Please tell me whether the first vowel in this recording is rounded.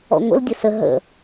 yes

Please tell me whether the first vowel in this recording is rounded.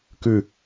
yes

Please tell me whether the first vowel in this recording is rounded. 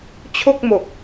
yes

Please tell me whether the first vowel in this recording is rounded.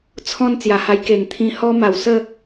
yes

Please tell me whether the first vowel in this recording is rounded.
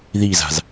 no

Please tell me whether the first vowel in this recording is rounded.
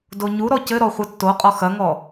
yes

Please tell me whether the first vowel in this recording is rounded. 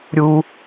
yes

